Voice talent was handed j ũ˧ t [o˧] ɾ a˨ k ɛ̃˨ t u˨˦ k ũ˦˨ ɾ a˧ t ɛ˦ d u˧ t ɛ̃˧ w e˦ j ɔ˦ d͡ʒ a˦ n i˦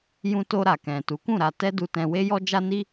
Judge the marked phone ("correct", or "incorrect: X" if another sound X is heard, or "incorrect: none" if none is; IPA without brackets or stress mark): correct